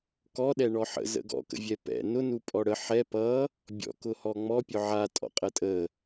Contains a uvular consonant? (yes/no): yes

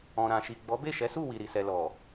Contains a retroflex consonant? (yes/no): no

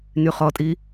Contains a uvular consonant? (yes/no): yes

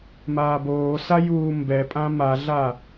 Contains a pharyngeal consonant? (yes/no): no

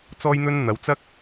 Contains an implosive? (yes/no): no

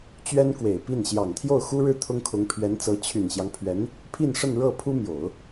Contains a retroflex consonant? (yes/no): yes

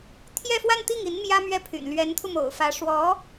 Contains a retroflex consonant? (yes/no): yes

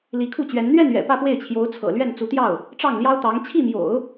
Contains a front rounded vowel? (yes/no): no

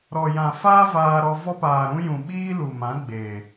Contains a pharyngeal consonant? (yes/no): no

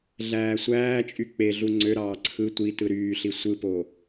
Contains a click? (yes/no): yes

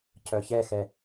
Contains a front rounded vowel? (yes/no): yes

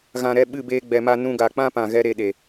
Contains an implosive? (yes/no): yes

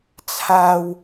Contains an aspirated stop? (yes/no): yes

